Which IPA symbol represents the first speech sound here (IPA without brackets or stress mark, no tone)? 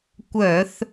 kʷ